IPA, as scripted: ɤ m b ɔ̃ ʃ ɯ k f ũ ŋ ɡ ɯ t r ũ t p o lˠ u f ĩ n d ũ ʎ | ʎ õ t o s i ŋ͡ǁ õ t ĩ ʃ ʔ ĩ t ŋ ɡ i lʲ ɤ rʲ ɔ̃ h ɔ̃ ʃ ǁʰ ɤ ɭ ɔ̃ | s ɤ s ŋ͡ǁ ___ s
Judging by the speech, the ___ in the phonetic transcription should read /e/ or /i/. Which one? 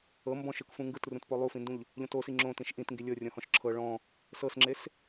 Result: e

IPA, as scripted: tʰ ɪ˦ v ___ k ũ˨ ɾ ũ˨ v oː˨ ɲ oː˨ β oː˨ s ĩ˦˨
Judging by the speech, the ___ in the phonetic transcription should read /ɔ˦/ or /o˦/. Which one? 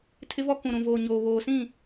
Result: ɔ˦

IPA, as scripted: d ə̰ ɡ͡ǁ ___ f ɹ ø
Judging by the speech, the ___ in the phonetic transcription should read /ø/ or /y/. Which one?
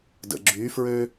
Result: y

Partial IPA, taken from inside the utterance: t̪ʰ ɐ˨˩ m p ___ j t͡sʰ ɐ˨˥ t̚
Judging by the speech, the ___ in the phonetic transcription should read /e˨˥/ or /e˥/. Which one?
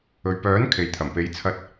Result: e˨˥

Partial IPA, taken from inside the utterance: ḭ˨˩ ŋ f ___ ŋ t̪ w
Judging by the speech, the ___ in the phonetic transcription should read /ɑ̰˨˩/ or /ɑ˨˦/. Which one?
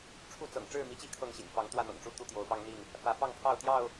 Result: ɑ˨˦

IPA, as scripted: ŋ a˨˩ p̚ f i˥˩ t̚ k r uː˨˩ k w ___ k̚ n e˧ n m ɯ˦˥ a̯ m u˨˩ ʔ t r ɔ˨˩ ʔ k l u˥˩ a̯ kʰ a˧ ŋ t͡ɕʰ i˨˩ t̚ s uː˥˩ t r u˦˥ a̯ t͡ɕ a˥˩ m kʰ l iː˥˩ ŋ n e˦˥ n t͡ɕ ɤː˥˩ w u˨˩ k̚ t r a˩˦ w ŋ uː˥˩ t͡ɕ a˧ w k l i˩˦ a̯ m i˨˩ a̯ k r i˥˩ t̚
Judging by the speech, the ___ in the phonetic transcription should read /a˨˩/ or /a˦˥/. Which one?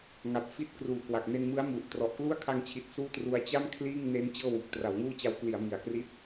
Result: a˨˩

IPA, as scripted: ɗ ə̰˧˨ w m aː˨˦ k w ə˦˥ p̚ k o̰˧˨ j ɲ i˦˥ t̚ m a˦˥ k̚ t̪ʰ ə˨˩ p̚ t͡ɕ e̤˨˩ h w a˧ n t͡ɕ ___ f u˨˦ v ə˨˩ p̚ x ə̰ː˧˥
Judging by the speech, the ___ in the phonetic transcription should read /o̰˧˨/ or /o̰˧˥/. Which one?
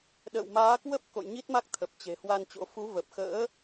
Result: o̰˧˥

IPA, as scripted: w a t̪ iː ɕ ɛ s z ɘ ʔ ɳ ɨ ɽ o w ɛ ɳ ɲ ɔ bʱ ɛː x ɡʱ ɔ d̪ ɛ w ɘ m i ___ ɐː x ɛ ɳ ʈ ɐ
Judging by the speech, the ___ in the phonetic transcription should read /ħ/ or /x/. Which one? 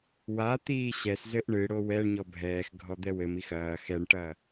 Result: x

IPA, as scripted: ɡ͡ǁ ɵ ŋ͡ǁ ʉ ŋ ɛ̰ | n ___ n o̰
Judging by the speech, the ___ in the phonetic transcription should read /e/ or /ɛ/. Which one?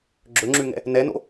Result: ɛ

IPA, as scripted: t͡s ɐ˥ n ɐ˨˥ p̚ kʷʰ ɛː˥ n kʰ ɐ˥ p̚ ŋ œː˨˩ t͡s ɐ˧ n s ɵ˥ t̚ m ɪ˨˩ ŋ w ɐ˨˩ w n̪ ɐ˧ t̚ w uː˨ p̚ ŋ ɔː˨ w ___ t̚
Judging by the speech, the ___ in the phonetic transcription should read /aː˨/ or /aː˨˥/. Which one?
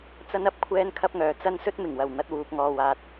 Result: aː˨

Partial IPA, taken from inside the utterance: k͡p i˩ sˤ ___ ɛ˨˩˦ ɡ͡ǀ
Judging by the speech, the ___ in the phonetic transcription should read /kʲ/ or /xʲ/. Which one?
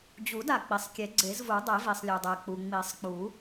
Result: kʲ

